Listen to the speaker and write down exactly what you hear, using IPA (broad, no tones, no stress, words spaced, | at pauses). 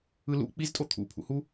ɯlṵ k͡piztʼo t̪ʰṵpʰṵhu